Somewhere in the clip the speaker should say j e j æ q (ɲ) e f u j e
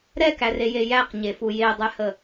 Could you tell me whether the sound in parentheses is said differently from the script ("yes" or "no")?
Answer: no